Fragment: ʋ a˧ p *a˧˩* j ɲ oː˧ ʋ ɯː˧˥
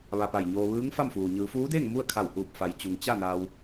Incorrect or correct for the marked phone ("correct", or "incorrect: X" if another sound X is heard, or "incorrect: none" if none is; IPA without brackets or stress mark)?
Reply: correct